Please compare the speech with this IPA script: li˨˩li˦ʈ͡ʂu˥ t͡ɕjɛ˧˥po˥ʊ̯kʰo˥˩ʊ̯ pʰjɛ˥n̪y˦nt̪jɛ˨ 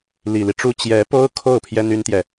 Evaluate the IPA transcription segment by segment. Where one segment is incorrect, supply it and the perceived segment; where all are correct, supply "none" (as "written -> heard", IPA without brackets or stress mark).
y˦ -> y˥